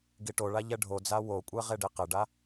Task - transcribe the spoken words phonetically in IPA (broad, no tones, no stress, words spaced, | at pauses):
ɡiʈoɭa ʎɛɖʱod͡za wokʷʼɛ ʁeɖiqɪɖa